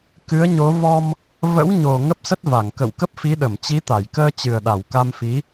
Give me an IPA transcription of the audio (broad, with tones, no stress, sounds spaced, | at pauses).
k ɨ˨˦ ə̯ ɲ o˨˦ v ɔ˧ m | v ə̰˧˥ w ɲ o˨˩ ŋ ə˦˥ p̚ s ə˦˥ t̚ v a˧˩ ŋ k ə̰˧˨ w k ə˦˥ p̚ f i˨˦ ɗ ə˧˩ m t͡ɕ i˨˦ t̪ a˧˩ j k əː˧ t͡ɕ ɨ˨˩ ə̯ ɗ a˧˩ w k a˧ m f i˨˦